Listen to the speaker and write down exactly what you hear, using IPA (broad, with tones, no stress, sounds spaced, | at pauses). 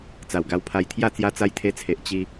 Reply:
t͡s a˨˩ w ɡ a˧ w pʰ a˧ j t̪ʰ j a˥˧ t͡s j a˧ t͡s a˧ j t̪ʰ e˧ t͡sʰ e˨ ʔ t͡ɕ i˧